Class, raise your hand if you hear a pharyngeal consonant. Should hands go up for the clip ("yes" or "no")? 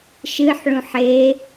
yes